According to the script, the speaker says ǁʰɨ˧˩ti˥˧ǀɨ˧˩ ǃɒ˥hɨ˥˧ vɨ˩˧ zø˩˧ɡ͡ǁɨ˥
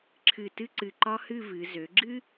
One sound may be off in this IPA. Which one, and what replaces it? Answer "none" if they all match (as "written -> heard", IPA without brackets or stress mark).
i˥˧ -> ɨ˥˧